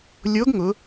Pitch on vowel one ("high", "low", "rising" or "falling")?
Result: rising